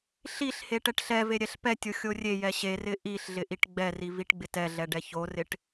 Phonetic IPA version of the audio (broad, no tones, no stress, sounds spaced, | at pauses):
ɬ i ɬ h e ʈ ɛ ʈ ɬ ɛ v e ɾʲ ɛ ɬ p ɛ tʲ o xʲ o rʲ e j ɛ ɕ e r ɪ ʔ i ɬ ɮ ɪ ʔ i ʈ ɡ͡b ɛ r i v i ʈ ɡ͡b ɪ t ɛ ɮ ɛ ɖ ɛ ç o r ɪ ʈ